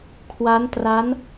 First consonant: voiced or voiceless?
voiceless